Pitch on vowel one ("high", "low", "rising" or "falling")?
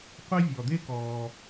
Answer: high